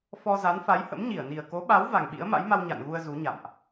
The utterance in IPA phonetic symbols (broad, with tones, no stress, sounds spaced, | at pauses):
f ɔ˧ z a˨˦ n f a˨˦ j h ə̰˧˥ m ɲ i˧˩ ə̯ n i˨˩ ə̯ k o˨˦ ɓ a˨˦ w v a˨˩ ŋ ɓ ḭ˧˥ ə̯ m a̰˧˥ j m a˧ w ɲ a̰˧˨ n ɣ u˧ ə̯ z u˨˦ ɲ a̰˧˨ m ʔ